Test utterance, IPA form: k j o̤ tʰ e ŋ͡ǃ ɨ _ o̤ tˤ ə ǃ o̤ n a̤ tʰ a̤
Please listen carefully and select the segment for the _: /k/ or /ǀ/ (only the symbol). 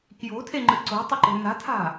ǀ